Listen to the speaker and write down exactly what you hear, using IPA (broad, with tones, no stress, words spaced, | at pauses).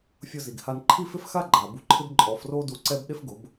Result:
fʲʊ˧zi˨ɡha˧n ǃʰi˦fɪ˦fxa˦ ɡ͡ǃa˨bu˧ǃʰɪ˦b ǃʼɔ˨˦fro˦du˧ ǀɛ˦b ɗe˦fɡʊ˨˦b